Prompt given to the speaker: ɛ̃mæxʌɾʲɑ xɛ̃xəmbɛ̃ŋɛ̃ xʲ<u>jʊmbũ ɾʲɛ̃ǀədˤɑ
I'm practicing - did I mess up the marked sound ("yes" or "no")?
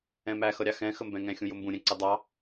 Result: yes